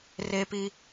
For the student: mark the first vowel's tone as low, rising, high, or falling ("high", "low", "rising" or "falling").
high